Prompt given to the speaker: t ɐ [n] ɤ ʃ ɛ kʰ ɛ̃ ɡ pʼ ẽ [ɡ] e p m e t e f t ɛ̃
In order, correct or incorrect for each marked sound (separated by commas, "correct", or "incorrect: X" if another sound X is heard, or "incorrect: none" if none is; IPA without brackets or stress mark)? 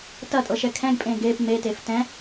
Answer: incorrect: tʼ, correct